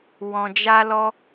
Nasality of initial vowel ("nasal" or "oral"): nasal